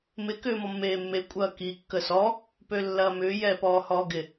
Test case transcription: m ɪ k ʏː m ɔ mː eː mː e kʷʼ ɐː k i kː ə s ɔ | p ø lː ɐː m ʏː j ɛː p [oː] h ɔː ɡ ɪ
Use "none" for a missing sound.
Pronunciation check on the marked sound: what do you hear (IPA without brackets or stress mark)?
ɔː